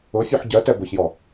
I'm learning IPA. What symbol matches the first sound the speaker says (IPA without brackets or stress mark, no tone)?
ʊ